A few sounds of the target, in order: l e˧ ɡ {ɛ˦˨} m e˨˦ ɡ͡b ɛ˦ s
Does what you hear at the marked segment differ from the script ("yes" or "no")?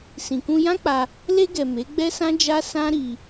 yes